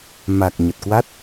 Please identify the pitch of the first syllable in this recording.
low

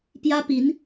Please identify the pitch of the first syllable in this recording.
high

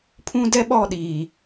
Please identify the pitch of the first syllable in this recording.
high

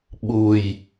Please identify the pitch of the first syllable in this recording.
low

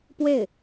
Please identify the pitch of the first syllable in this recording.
falling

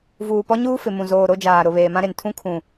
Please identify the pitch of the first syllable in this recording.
low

